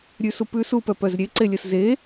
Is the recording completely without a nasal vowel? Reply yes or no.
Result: yes